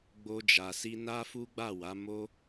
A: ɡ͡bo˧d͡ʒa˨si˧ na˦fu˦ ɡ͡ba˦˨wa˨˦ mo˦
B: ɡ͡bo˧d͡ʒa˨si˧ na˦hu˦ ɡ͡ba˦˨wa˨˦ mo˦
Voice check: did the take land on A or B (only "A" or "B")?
A